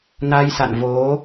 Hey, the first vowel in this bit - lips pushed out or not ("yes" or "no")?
no